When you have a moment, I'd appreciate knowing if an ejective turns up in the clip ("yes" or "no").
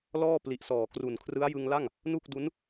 no